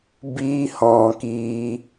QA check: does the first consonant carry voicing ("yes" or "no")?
yes